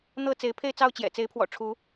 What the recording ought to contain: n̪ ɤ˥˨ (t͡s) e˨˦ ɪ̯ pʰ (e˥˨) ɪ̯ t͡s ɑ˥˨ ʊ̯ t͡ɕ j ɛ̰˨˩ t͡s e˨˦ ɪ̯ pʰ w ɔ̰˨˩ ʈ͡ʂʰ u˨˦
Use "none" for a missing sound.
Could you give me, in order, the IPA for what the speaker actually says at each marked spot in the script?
t͡s, e˥˨

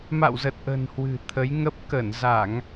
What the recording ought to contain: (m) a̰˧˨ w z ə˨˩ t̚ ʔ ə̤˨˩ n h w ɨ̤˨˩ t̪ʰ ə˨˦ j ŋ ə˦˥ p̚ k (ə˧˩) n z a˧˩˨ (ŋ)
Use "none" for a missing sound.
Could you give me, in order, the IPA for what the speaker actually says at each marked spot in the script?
m, ə˧˩, ŋ

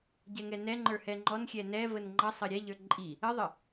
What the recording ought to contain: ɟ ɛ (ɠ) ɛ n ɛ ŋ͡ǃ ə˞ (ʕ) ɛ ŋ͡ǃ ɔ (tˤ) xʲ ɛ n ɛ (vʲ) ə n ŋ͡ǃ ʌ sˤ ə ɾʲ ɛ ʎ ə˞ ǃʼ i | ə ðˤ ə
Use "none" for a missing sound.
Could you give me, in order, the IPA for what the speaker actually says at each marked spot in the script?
ŋ, h, n, v

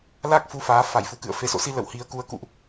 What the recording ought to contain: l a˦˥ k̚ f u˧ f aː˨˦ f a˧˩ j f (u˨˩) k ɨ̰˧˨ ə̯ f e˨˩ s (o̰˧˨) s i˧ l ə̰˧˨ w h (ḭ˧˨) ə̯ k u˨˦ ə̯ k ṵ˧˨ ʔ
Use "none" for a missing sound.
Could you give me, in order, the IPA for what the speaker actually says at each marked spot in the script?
u˨˩, o̰˧˨, i˨˦

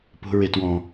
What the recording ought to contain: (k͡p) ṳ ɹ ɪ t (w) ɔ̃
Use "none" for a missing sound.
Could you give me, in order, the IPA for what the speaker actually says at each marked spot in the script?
p, w

